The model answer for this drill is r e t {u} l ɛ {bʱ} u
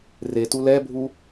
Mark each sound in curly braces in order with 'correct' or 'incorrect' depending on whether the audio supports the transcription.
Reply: correct, correct

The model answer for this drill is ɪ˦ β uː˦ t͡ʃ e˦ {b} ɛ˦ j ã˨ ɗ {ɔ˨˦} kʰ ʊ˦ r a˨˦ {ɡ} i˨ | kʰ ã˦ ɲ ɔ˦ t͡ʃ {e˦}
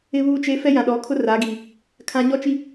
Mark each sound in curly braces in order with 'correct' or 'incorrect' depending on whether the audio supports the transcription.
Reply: incorrect: f, correct, correct, incorrect: i˦

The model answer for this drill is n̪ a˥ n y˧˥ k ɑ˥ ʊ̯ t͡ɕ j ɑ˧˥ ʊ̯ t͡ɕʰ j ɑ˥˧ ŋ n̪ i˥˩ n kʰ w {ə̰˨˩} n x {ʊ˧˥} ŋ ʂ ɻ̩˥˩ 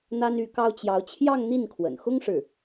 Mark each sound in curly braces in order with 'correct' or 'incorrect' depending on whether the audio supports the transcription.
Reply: correct, incorrect: ʊ˥

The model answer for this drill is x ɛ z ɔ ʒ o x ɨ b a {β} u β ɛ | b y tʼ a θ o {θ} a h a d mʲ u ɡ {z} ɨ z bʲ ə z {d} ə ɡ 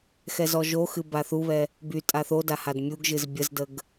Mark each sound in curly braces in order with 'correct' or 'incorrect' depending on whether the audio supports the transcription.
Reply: incorrect: θ, incorrect: d, incorrect: ʒ, correct

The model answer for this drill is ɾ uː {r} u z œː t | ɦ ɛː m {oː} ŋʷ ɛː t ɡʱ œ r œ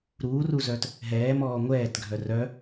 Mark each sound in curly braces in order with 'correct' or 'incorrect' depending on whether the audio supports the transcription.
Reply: correct, incorrect: ɔː

